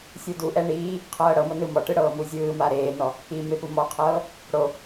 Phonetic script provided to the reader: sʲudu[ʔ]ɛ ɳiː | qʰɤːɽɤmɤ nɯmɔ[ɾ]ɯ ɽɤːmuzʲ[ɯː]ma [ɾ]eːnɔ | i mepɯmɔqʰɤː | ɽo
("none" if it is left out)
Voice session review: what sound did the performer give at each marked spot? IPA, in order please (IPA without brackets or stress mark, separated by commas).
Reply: ʔ, ʈ, ɯː, ɾ